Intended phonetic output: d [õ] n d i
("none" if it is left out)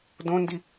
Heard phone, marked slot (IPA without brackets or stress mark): õ